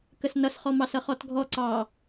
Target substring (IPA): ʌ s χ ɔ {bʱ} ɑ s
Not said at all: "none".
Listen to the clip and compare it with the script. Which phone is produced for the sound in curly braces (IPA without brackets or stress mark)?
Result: m